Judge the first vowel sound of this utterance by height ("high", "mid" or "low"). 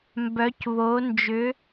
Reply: mid